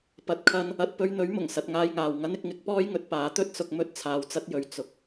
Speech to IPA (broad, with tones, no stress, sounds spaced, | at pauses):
p ɐ˨ t̚ kʰ ɐ˧ n | ɐ˧ t̚ p ɵ˧ ɥ n̪ ɵ˨˥ ɥ m ʊ˨˩ ŋ s ɐ˧ t̚ ŋ aː˧ j ŋ aː˨ w ŋ ɐ˥ n ɪ˧ k̚ ŋ ɪ˨˥ k̚ p ɔː˥ j ŋ ɵ˨˥ t̚ p aː˨˥ t̪ ɵ˥ t̚ s ʊ˧ k̚ m ɵ˥ t̚ t͡sʰ aː˧ w t͡s ɐ˥ t̚ j ɵ˧ ɥ t͡s ʊ˧ k̚